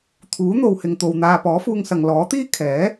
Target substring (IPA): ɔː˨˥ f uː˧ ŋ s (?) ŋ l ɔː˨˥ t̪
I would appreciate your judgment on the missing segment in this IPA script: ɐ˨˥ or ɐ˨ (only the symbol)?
ɐ˨